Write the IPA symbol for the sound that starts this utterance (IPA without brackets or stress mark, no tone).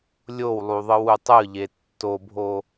lʲ